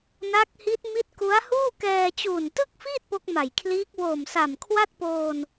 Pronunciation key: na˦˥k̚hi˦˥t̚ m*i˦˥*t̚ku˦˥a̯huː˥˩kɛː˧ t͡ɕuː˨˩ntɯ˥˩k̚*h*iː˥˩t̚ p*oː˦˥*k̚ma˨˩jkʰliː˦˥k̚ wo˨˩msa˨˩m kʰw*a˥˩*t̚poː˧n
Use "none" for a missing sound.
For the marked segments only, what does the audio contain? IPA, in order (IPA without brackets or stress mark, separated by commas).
i˦˥, f, o˦˥, a˥˩